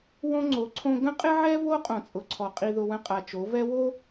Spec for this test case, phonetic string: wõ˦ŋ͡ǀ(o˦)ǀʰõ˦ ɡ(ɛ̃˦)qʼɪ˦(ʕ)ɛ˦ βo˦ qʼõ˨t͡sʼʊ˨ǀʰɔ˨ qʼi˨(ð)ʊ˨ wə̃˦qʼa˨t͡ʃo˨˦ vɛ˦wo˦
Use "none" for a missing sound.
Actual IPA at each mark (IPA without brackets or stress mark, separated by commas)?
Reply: o˨˦, ə̃˦, ʕ, ð